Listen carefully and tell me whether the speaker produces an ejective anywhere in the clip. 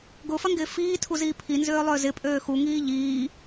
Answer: yes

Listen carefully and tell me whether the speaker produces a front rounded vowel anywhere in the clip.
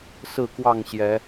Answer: no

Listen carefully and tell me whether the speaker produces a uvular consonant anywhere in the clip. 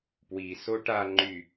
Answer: no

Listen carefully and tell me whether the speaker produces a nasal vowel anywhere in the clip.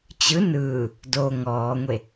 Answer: no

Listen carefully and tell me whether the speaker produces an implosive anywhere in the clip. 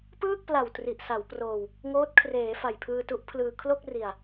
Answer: no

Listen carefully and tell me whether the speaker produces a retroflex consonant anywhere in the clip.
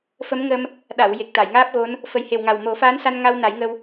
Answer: no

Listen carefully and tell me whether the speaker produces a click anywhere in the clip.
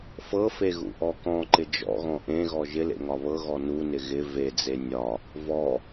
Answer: yes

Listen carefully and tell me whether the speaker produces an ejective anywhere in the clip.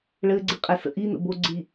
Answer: yes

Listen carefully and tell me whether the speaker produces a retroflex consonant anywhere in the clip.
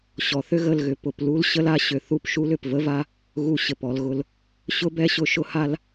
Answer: no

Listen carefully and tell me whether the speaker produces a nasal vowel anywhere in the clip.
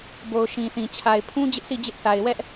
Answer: yes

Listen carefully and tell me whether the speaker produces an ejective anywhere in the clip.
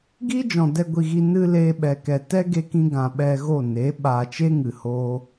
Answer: no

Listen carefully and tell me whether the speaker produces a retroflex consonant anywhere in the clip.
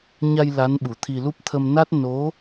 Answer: no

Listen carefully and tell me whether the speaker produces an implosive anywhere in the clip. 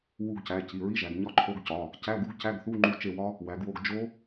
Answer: no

